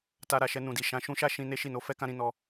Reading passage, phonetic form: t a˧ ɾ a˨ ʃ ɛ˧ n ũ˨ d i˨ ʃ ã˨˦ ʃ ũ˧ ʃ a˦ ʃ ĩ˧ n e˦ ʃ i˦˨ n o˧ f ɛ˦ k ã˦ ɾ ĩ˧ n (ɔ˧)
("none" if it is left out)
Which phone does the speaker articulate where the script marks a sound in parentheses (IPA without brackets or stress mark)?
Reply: ɔ˧